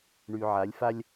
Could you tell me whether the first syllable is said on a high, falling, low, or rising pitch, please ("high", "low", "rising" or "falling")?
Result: low